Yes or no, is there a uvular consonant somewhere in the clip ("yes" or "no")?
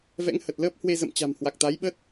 no